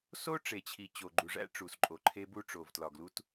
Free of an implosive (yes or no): yes